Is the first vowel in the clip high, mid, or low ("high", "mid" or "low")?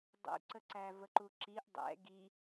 high